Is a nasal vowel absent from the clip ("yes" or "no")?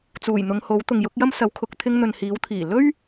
yes